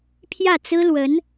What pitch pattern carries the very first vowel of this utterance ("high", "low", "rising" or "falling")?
falling